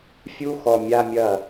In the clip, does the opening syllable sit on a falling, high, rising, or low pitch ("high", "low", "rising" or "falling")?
high